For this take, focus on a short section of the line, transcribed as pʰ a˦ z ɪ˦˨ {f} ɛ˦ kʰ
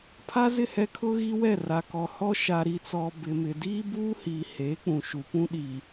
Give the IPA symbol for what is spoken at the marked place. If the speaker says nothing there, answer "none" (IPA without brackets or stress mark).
h